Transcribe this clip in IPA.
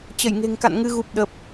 t͡ɕə˧˩jŋe̤˨˩ŋka̰˧˨n ŋɨ˧ɣu˨˩p̚ ɗə˨˩p̚

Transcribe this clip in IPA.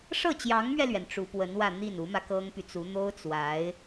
ʂɤ˥˩t͡ɕjɑ˧˥ŋmɥɛ˧lɥɛ˩n ʈ͡ʂu˧˥pwə˧˥nwä˥˧ n̪i˥˩nu˧˥mä˧ kɤ˥ŋpy˨t͡su˧˥ n̪o˥ʊ̯t͡swa˧˥ɪ̯

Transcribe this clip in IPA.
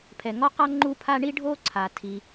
pʰɛ˩ŋɔ˥qa˥ ŋ͡ǃu˥pʰa˥ ɳi˥ɖʱo˥ǀʰa˩ tʰi˩

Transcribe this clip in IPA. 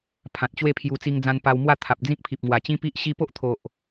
pʰã˨t̚t͡ɕwe˥˧pʰju˧ t͡si˧ŋd͡zã˧n pa˧wmwa˥˧t̪ʰa˨p̚ d͡zĩ˦k̚pʰi˨p̚ŋwa˨˩ t͡ɕĩ˦pi˦ʔ ɕi˧po˦ʔt̪ʰo˨ʔ

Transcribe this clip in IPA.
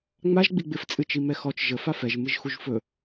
ŋ͡maʒ ɡ͡biɡ͡bɪf t͡sʼɨt͡ʃimɛxɔt͡ʃ ʒə fafɛʒ mɨʒxuʒfɵ

